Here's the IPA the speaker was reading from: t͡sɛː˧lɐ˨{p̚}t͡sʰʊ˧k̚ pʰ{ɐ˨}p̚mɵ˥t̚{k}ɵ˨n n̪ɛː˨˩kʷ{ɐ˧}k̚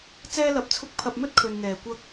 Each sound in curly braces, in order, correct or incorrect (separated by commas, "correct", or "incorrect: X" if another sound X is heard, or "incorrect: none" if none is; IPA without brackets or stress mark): correct, incorrect: ɐ˧, incorrect: kʰ, correct